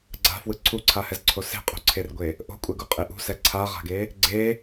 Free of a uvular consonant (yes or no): no